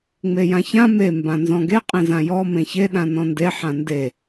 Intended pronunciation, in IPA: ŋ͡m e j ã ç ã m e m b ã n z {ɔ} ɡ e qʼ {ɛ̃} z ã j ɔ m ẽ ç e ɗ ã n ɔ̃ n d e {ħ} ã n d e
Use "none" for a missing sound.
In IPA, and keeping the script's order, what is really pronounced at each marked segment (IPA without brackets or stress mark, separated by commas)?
ɔ̃, ẽ, ħ